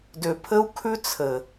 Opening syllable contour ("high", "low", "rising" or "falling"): low